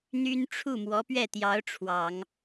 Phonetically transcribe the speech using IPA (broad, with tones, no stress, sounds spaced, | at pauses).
n̪ y˥ n ʈ͡ʂʰ u˥˩ m w ɔ˧˥ p ɥ ɛ˥˩ t̪ j ɑ˧˥ ʊ̯ ʈ͡ʂʰ w ɑ˨˩˦ ŋ